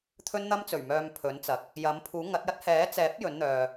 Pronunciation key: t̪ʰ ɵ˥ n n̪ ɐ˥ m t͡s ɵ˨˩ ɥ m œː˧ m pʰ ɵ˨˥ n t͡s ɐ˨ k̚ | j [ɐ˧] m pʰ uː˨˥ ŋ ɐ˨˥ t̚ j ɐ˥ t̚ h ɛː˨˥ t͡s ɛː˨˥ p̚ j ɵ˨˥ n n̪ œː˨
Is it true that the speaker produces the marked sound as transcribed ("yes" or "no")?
no